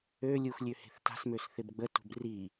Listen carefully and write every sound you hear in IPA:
ø lʲ u x lʲ ø h e̤ θ t a̤ s m ø s θ ɪ b ɡ͡b ə t ṳ b r i

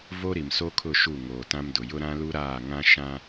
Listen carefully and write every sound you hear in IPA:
v o˦ ɾ i˨ m s o˦ kʰ ʊ˦˨ ʃ u˦˨ ŋ oː˨ t ã˦ m d ʊ˨ j ʊ˦ ɾ ã˦ l u˦ ɾ aː˦˨ ŋ ã˦ ʃ ã˦

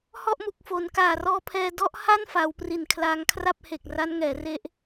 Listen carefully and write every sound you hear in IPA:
h ɔ˥˩ ʔ m u˨˩ k̚ f o˩˦ n k aː˨˩ r ɔː˧ pʰ ɛː˧ d ɔ˦˥ ʔ h a˥˩ n f a˩˦ w p r i˨˩ n kʰ l aː˧ ŋ kʰ r a˥˩ p̚ h e˨˩ k̚ r a˦˥ n ŋ ɛː˩˦ r e˦˥ ʔ

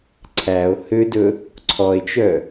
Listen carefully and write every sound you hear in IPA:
ǀʰ æ o̯ h ø d ɵ | ǀʰ ɔ e̯ t͡ʃ œ

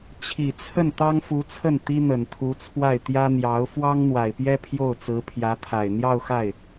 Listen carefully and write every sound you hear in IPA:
t͡ɕʰ i˨˩ t͡sʰ ə˥˩ n t̪ ɑ˥ ŋ f u˧˥ t͡sʰ ə˥˩ n t̪ i˥ n̪ ə˨˩ n t̪ʰ u˧˥ t͡sʰ w a˥˩ ɪ̯ t̪ j ä˥ n̪ j ɑ˧˥ ʊ̯ f w ɑ˥ ŋ n̪ w a˨˩ ɪ̯ p j ɛ˥ pʰ j o˥˩ ʊ̯ t͡s ɹ̩˧˥ pʰ j ä˧˥ t̪ʰ a˨˩ ɪ̯ n̪ j ɑ˥˧ ʊ̯ x a˥˩ ɪ̯

